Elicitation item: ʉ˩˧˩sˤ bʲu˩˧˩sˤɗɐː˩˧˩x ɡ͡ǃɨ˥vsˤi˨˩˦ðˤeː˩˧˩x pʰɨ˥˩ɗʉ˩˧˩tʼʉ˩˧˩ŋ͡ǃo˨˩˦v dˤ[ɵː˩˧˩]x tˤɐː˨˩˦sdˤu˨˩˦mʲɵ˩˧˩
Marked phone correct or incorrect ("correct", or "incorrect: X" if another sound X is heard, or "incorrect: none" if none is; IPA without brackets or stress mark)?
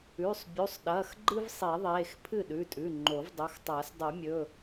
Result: incorrect: ɵ˩˧˩